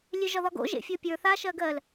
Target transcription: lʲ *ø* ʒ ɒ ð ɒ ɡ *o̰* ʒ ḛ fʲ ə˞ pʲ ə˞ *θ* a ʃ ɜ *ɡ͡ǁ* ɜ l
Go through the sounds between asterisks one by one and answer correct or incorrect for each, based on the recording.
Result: correct, correct, correct, incorrect

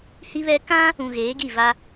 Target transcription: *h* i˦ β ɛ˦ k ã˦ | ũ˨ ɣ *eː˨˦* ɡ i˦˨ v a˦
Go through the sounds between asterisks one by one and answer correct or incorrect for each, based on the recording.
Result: correct, correct

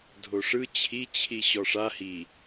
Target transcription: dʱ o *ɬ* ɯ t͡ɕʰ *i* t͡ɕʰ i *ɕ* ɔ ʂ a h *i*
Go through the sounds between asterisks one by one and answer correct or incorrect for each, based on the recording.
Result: incorrect, correct, correct, correct

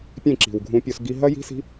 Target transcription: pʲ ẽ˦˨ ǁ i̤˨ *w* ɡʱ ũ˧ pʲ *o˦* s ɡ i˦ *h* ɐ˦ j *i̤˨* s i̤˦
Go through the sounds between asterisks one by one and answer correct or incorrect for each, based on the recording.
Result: correct, incorrect, incorrect, incorrect

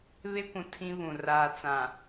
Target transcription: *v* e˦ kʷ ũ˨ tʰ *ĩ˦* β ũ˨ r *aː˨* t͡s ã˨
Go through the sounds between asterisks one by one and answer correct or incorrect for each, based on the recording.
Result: incorrect, correct, correct

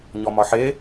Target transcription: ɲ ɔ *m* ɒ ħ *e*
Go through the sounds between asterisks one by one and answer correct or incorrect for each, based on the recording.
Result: correct, correct

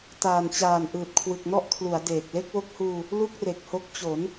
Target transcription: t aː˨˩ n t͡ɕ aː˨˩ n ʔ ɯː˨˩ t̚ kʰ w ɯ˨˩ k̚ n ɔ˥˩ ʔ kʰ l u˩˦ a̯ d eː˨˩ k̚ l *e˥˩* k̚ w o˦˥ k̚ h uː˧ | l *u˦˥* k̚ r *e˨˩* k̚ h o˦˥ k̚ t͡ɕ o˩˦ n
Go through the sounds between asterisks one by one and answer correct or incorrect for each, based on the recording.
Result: correct, incorrect, correct

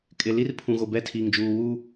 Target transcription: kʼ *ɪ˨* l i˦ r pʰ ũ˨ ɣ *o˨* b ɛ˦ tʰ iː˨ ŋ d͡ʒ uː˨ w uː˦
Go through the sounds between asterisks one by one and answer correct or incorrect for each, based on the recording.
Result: correct, correct

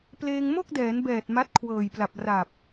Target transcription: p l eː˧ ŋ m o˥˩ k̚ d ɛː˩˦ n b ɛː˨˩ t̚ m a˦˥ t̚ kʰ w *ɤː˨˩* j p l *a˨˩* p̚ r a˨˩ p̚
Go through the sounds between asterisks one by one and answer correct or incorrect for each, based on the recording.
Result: correct, correct

